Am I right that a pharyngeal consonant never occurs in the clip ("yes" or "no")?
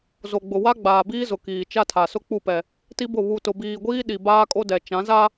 yes